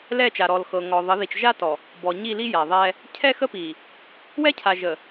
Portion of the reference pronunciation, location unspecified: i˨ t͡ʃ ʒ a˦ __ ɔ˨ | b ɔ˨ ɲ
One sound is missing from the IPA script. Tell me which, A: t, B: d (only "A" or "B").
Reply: A